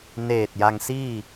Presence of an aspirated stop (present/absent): absent